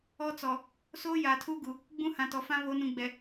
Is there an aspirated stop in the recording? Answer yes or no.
yes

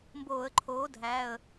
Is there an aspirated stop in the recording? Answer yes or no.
yes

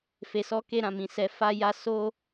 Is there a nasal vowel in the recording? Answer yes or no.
yes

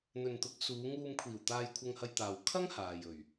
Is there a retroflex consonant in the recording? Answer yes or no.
no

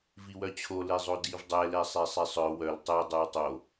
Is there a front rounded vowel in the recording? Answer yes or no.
yes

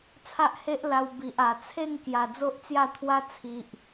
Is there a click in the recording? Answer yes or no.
no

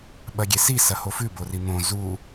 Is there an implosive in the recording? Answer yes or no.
yes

